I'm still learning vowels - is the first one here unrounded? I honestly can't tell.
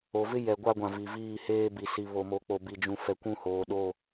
no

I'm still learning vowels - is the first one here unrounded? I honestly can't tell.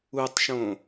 no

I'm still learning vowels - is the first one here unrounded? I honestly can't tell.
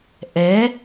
yes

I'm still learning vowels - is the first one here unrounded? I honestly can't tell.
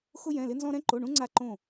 no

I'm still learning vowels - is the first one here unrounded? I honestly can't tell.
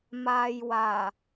yes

